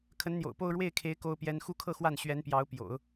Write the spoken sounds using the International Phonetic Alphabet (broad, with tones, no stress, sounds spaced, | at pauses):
kʰ ə˧˥ n n̪ j o̰˨˩ ʊ̯ p o˥˧ ʊ̯ ɻ w e˥˩ ɪ̯ kʰ e˧˥ ɪ̯ k o˥ ʊ̯ p j ɛ˥ n x u˥˧ kʰ ɤ˥˧ x w a˥˩ n ɕ ɥ ɛ˧˥ n p j ɑ˧˥ ʊ̯ p j o̰˨˩˦ ʊ̯